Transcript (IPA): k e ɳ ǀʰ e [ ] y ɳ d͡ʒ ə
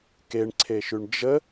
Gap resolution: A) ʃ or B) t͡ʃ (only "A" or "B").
A